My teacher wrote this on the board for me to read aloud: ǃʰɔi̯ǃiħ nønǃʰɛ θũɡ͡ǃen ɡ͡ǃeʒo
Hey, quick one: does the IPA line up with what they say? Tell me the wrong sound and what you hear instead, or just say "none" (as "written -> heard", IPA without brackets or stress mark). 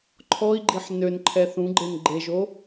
ǃ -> ɡ͡ǃ